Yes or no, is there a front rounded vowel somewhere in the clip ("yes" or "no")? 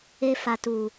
no